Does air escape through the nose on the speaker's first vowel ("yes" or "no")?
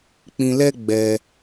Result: yes